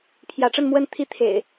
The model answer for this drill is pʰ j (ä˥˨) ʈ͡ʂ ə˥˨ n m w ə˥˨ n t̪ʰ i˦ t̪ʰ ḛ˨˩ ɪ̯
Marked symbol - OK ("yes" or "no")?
no